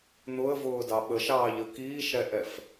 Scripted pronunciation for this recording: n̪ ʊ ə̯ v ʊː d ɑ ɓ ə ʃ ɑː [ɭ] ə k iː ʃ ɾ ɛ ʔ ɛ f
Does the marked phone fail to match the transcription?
yes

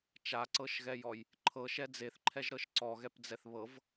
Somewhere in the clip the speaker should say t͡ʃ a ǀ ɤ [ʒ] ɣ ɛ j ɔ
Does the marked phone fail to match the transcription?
yes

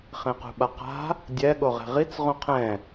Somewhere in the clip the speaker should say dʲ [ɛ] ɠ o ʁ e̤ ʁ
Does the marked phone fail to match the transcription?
no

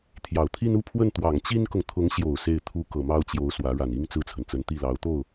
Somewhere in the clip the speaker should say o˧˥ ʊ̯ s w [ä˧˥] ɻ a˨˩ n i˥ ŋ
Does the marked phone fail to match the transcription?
no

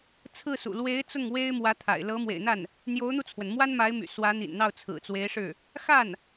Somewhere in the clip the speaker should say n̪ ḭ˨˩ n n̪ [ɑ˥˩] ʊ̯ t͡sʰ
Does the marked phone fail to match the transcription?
no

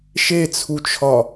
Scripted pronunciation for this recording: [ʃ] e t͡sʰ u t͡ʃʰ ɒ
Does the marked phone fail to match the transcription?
no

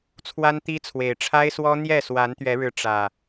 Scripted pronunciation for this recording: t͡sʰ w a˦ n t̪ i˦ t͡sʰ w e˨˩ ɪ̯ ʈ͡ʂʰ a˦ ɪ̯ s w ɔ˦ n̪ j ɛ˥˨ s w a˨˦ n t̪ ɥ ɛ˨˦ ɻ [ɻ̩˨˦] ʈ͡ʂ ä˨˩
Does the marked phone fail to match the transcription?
no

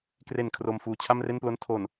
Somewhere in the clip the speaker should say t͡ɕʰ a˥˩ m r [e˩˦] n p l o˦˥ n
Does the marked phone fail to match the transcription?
yes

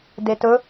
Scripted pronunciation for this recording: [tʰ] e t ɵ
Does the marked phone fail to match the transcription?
yes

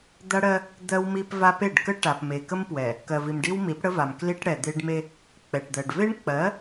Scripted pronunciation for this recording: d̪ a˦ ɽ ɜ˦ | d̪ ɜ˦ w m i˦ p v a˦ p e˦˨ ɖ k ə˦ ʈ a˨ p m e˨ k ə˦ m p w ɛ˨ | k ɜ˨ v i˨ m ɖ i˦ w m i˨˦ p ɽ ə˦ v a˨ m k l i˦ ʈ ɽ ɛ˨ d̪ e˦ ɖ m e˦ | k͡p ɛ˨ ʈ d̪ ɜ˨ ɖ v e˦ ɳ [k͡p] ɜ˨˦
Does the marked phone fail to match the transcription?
no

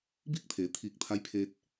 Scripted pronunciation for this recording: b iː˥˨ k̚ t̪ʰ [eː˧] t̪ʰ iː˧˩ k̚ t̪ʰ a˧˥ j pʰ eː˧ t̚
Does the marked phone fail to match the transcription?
yes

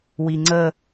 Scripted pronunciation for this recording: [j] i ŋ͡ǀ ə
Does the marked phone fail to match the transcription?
yes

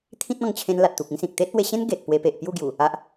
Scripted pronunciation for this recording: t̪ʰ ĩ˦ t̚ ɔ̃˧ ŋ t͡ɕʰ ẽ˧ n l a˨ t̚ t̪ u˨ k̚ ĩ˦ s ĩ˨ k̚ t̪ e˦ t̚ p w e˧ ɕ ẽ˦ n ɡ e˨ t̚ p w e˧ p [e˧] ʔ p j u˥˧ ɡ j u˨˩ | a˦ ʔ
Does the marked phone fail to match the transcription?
yes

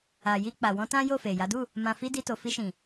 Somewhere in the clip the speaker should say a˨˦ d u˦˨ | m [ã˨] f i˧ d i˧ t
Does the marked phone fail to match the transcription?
no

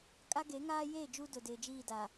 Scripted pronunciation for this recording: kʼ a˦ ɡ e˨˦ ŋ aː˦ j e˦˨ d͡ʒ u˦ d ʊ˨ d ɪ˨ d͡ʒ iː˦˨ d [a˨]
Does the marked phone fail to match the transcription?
no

